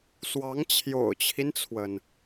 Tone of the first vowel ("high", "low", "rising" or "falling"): rising